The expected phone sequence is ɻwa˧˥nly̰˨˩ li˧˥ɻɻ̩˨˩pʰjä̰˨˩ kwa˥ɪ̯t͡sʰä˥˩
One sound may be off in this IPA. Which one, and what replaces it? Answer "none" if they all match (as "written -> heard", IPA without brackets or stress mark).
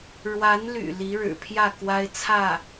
ä̰˨˩ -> ä˥˩